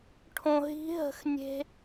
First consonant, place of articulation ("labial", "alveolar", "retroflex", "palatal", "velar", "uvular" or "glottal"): retroflex